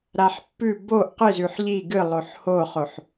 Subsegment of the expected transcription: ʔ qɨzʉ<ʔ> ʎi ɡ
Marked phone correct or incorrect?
incorrect: ħ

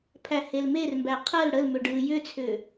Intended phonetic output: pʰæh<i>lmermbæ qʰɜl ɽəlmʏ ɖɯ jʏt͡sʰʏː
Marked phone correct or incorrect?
incorrect: e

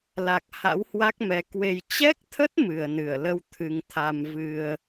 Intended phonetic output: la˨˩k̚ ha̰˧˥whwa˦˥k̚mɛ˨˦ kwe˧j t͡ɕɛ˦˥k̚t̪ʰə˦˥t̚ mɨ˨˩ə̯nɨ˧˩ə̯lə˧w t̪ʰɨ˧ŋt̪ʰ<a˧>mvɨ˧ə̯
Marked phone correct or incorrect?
correct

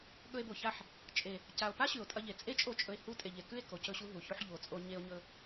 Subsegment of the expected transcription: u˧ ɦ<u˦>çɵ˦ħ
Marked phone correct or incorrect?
incorrect: u˨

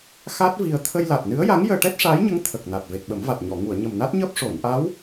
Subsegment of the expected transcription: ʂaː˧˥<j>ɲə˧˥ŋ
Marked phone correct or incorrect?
correct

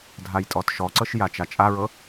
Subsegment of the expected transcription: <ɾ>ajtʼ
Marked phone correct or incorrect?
incorrect: dʱ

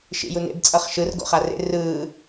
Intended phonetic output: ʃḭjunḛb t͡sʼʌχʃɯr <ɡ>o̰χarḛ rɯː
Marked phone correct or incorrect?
correct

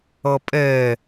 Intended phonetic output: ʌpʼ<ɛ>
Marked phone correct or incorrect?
correct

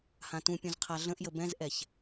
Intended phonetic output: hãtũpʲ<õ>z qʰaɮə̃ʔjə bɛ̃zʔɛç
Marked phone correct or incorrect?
incorrect: ũ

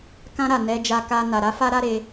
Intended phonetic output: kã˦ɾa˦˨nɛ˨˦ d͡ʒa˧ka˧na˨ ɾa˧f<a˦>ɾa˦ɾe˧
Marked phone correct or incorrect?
correct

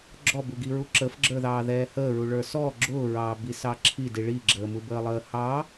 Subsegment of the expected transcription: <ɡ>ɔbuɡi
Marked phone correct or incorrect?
incorrect: ɡ͡ǁ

